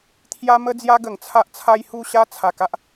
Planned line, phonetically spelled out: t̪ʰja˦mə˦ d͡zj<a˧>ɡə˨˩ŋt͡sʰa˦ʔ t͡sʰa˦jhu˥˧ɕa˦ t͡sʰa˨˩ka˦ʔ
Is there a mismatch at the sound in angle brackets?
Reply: yes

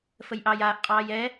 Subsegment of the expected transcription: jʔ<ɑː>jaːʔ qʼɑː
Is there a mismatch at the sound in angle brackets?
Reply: no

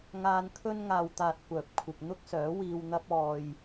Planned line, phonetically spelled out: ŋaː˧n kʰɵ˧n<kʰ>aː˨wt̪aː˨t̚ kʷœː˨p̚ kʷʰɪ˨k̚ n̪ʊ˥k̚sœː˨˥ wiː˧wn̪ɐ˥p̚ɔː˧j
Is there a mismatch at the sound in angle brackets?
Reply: yes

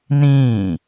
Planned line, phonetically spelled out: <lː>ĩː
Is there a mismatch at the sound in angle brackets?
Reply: yes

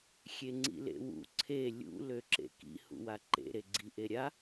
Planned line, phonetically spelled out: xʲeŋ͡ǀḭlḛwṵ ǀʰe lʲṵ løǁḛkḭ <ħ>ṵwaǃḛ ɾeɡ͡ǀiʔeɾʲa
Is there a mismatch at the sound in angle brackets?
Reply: yes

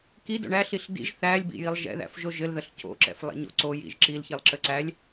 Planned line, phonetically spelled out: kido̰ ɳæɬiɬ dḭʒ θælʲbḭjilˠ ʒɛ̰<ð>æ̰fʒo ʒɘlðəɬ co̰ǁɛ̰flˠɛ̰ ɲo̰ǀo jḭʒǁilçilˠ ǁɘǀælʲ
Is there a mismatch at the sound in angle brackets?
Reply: no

